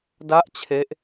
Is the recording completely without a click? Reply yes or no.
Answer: yes